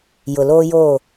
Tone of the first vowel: low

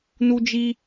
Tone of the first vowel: high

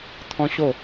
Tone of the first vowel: high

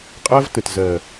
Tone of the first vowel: high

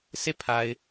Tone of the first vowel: falling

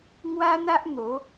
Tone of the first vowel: high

